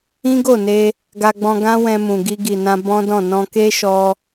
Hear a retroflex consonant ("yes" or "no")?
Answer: no